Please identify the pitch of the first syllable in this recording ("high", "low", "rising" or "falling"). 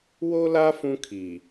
high